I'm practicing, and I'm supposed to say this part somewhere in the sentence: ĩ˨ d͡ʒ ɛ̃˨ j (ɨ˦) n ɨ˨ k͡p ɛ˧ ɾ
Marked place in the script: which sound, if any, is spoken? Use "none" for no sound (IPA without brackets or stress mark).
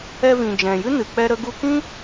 ɨ˦